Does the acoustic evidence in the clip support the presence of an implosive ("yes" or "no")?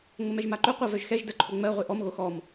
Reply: no